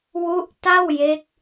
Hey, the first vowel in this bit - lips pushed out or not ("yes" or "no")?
yes